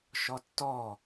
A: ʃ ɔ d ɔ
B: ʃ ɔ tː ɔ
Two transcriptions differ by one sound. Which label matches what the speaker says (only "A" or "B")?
B